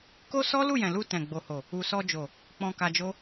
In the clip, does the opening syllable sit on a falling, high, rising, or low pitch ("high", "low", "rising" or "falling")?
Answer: high